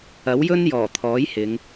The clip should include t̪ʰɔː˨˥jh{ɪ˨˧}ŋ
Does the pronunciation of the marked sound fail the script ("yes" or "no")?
no